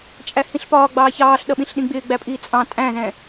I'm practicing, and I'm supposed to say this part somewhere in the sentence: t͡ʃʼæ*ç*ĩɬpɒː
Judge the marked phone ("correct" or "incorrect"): incorrect